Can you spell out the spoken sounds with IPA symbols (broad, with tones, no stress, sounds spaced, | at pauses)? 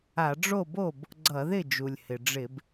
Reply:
a˧˩˧ ɖ͡ʐ o˥˩ b o˥˩ b | ɡ͡ǀ ʌ˧˩˧ ð ɪ˥˩ d͡ʒ u˩ lʲ h ɪ˩ ɖ͡ʐ ɪ˧˩˧ b